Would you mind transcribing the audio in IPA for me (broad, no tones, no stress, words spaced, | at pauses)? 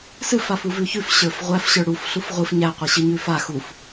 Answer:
sɨ fafuvʉçʉf ɕə˞fʁʷæf ɕə˞ɽuf ɬufʁʷɨf ɲæ qʷiɕɨɲʉfa xuf